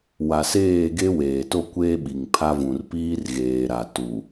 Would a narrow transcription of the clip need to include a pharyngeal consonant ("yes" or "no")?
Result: no